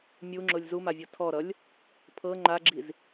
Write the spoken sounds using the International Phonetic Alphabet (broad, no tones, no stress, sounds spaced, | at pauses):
mʲ u ŋ͡ǁ ʊ lʲ z u m a vʲ ɤ tʰ ɔ ɾ ʌ lʲ | pʰ ɤ ŋ͡ǃ a ɡ͡ǁ i z